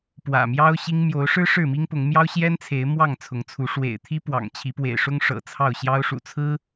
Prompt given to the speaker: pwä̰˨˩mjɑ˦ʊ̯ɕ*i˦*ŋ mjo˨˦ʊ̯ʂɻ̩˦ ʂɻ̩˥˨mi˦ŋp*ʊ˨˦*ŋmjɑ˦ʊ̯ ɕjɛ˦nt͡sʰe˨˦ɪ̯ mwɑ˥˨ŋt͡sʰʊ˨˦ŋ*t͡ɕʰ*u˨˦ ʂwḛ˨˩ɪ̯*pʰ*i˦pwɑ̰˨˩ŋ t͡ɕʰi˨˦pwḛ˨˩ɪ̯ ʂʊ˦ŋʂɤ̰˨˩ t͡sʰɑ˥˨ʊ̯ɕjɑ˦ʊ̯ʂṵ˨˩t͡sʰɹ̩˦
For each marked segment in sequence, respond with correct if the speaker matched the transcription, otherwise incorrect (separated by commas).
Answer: correct, correct, incorrect, incorrect